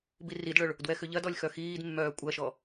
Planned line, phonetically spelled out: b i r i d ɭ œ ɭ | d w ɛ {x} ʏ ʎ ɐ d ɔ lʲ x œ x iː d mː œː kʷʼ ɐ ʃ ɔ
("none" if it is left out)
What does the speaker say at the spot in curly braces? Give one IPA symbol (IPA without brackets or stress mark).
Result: x